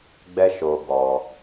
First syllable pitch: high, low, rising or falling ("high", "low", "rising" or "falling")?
high